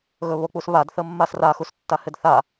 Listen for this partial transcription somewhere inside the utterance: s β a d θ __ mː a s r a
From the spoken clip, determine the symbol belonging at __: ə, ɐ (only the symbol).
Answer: ə